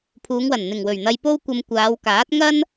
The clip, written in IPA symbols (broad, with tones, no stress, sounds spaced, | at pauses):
pʰ uː˨˧ ŋ w ɐ˨˩ n n̪ ɪ˨˩ ŋ w ɵ˨˩ ɥ n̪ ɐ˧ j p o˥ w kʷ ɐ˧ m kʷ aː˨˧ w k aː˨˥ t̚ ŋ ɐ˥ n